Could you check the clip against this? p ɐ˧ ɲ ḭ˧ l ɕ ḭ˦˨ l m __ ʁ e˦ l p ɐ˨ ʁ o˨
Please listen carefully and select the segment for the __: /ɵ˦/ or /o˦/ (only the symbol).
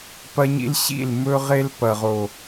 ɵ˦